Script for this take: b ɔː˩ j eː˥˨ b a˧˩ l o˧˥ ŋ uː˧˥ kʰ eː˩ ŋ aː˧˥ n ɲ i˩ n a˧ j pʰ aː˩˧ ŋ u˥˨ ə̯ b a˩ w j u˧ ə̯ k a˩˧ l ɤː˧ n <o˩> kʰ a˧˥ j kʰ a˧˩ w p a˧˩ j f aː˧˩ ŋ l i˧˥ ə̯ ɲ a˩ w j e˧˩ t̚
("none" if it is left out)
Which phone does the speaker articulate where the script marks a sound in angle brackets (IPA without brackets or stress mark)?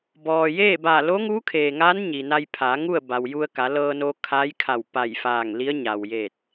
o˧